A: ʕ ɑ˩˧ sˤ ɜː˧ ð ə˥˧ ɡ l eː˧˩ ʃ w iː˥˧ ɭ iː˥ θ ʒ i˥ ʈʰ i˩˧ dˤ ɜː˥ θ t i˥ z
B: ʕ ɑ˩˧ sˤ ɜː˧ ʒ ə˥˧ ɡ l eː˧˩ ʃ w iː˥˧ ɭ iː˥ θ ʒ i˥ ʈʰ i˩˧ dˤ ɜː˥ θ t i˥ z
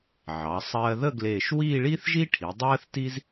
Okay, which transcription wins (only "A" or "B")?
A